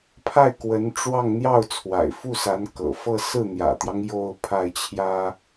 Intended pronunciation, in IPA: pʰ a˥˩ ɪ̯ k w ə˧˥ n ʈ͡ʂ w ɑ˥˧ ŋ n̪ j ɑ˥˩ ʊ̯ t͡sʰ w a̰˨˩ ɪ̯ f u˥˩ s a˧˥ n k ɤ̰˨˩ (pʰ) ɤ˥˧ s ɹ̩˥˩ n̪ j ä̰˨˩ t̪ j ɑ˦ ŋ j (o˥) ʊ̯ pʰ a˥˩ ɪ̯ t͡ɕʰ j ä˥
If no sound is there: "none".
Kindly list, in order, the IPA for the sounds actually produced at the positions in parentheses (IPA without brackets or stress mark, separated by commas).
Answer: f, o˥˧